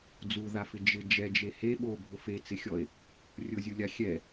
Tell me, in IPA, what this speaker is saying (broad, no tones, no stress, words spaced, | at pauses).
d͡zuðafɪ d͡ʒɪ d͡ʒɛd͡ʒe he ɓobʱʊ fet͡sɪxʲɔe̯ | rʲʊzʲulʲa xʲɛ